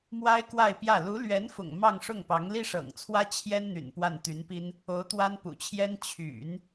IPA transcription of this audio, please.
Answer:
m w a˥ ɪ̯ k w a˥˧ ɪ̯ p j ä˥˩ l u˧˥ l ɥ ɛ˧˥ n f ʊ̰˨˩ ŋ m ɑ˥˧ ŋ ʂ ʊ˥˩ ŋ p ɑ˧˥ ŋ l i˥ ʂ ɤ̰˨˩ ŋ t͡sʰ w ä˥ t͡ɕʰ j ɛ˥ n n̪ y̰˨˩ n p w a˥˩ n t̪ y˧˥ n p i˥ n | o˧˥ ʊ̯ t̪ w a˥ n p ṵ˨˩ t͡ɕʰ j ɛ˥ n t͡ɕʰ y̰˨˩˦ n

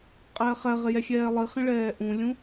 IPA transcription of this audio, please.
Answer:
qʼ ɛː χ ɛ ʁ ɪ j ɛ xʲ ɛː lˠ i χ ĩ ɭ ɛː ʔ ũ lʲ ũ

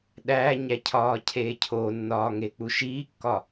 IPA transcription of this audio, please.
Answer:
ɗ æː ɲ æ cʰ ɒː cʰ eː cʰ o nː ɒː ŋ e k͡p u ʃ iː kː ɒ

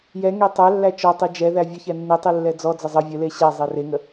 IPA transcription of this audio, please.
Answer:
j ɛ ŋ e tˤ ɛ lː æ t͡ʃ ɔ tˤ i d͡ʒ ɛ ð æ vʲ ə ç ɛ nː i tˤ i lː ɛ d͡z ɔ d͡z ə zˤ ə vʲ ə l e ɕ æ zˤ e r e ŋ ə

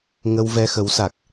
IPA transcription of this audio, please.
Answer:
ŋ ə˧ w v ɛ˧ x ə˨˦ w s a˨˩ k̚

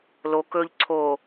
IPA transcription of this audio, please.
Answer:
l o k ɵ ʎ ǀʰ o

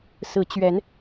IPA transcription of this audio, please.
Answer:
s ɹ̩˨˦ t͡ɕ ɥ ɛ˨˦ n

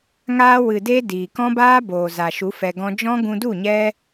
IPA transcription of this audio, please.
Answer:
ŋ aː˧ w ɨ˨ d e˧ d iː˨ k ɔ̃˦ b aː˦ b oː˨ z a˨ ʃ u˨˦ f ɛ˧ ɡ ɔ̃˦ d͡ʒ ɔ̃˦ ɡ ũ˧ d u˦˨ ɲ ɛ˦

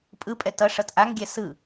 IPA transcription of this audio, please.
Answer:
pʼ ɯ pʼ ɛ t ʌ ʂ ʌ t ʔ a ŋ ɡʲ ɛ s ɯ

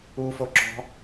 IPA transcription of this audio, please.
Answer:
u f o ǁ ɔ̤

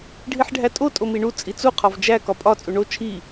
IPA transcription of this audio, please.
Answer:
ɖʱ i ħ ɖʱ æ tʼ o tʼ o m i ɳ u t͡sʼ i t͡s u qʰ ɒ v d͡ʒ æ k ɒ pʼ ɒ t͡sʼ u ɳ o t͡ʃʰ i

